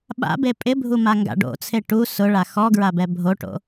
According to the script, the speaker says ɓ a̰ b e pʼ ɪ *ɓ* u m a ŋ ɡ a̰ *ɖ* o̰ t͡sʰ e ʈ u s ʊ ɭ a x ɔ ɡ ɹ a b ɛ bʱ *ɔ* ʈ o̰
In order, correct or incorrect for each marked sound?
incorrect, correct, incorrect

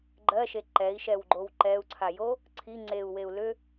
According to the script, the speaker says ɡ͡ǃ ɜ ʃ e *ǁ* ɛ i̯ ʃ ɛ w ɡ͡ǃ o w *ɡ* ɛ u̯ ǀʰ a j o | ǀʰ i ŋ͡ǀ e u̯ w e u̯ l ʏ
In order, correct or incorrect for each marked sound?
incorrect, incorrect

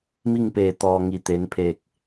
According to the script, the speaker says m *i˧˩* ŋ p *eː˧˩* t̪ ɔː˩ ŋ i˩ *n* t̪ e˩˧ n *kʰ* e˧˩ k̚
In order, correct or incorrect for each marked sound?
incorrect, correct, incorrect, incorrect

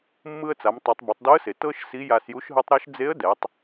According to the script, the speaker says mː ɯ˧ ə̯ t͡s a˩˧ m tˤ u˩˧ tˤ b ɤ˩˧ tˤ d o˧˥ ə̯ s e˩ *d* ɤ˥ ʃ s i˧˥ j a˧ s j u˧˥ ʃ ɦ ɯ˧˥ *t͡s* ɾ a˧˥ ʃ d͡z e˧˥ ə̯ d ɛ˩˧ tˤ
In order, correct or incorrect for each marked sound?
incorrect, incorrect

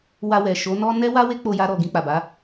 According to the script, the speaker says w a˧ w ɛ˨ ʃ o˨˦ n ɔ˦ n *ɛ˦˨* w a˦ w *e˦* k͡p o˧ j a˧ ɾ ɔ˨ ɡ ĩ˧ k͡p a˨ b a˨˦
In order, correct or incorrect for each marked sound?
incorrect, correct

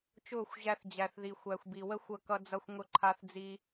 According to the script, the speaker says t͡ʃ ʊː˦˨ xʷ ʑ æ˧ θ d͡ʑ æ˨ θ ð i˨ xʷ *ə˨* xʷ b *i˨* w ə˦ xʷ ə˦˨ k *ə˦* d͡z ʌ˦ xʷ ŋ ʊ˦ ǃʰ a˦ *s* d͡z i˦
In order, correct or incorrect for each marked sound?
incorrect, correct, incorrect, incorrect

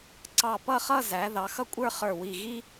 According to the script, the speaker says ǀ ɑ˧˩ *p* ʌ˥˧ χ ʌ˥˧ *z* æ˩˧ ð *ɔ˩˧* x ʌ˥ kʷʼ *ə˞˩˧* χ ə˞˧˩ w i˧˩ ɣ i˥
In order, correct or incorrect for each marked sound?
correct, correct, incorrect, incorrect

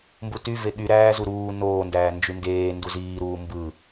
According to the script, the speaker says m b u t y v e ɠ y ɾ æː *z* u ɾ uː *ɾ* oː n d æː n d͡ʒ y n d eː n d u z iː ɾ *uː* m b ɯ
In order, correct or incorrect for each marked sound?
correct, incorrect, correct

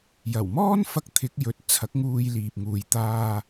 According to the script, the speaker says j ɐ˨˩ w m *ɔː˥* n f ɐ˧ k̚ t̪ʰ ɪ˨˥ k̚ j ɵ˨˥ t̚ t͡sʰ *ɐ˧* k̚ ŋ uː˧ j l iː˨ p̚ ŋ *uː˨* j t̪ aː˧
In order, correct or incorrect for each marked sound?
correct, incorrect, correct

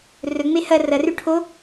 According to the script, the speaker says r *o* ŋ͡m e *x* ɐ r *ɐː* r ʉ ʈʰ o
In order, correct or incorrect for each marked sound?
incorrect, incorrect, incorrect

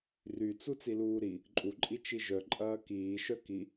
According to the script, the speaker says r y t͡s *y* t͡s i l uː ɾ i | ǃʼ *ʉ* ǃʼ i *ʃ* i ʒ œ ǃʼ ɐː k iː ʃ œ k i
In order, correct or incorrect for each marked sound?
incorrect, incorrect, incorrect

